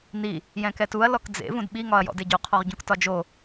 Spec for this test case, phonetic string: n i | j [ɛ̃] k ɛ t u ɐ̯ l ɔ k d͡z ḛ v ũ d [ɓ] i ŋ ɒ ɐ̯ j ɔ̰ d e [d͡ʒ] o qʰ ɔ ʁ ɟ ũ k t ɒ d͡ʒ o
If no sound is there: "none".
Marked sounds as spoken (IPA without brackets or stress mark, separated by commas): ɛ̃, ɓ, ɟ